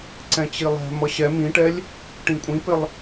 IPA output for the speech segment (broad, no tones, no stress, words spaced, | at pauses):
ǀɛ̃t͡ɕilˠɛ̤ mʌɕɛ mĩʈɛlʲ | ʈĩkʷʼĩpɪlˠ